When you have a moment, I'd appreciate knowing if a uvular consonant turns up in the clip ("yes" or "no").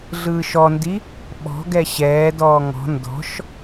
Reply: no